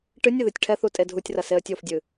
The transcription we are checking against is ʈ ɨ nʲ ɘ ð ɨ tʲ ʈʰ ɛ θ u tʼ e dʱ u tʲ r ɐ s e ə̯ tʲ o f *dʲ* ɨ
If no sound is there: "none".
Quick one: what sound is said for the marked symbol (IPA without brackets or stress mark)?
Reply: dʲ